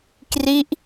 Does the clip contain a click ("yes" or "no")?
no